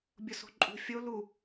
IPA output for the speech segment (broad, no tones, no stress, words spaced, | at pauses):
bʲoso̤ǃʼṳ fʲo lu